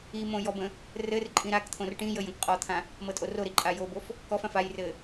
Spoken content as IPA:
i m õ j ɔ b ə̃ | r ɘ r ǃʼ ĩ ɾ a k t̪ʰ õ r ʈ ĩ j ə j ə̃ k qʼ ɔ t̪ʰ ã | m ɤ tʼ o r o ɾ i ǃʼ a j o b o f | k ɔ f ã f a j r ɘ

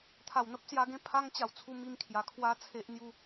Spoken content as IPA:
t̪ʰ a˨˩ w n̪ ə˦ p̚ s j a˧ ɡ ẽ˦ pʰ a˧ ŋ t͡ɕ a˨˩ w t͡sʰ u˧ m i˧ m kʰ j a˨˩ kʰ w a˦ t͡sʰ e˦ ʔ n̪ j u˥˧

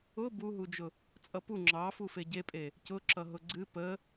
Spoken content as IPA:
ʊ b u ɦ u d͡ʒ ʊ | t͡sʼ ʌ p u ŋ͡ǁ ɑ f u f e ɟ e pʼ e | c ʊ ǁ ʌ ɦ ʊ ɡ͡ǀ ɨ p ə

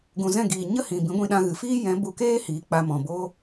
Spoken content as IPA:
ɡ ũ˨ z ɛ̃˦˨ ɡ iː˨ ɲ ə˦ h ĩ˨ b ĩ˨˦ ɡʷ ĩ˧ ɗ ã˧ ɣ ɨ˨ f iː˦ j ɛ̃˨˦ b u˧ k eː˦ h iː˨ k͡p a˧ m ɔ̃˨ b o˦

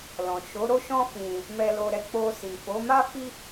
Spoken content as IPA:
l ɔ̃˨ ʃ o˨˦ ɾ o˦ ʃ ɔ̃˦ f ĩ˧ | m ɛ˧ l o˧ ɾ ɛ˧ k͡p o˧ s i˨ f o˨˦ m a˦ f i˦

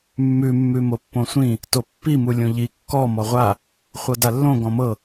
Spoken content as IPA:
mː ʉ mː ʉ m o pː õ sʷ ĩ | t o pː i m u lʲ õ ʎ i kː ɔ m ɔ ʁʷ a | χʷ ɤ d a lː õ ɡ ɔ̃ m ɤ

